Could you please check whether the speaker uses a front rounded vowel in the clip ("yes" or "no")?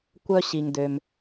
yes